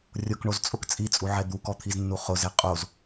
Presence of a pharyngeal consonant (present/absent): present